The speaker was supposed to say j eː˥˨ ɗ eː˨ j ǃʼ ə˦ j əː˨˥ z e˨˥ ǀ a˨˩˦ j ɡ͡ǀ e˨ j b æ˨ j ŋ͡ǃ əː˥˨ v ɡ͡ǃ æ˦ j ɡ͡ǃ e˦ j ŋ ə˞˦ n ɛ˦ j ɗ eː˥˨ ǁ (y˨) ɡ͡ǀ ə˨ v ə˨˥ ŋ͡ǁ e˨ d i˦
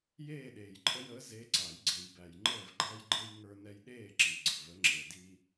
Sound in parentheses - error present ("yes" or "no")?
yes